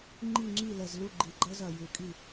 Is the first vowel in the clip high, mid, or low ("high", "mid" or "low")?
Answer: high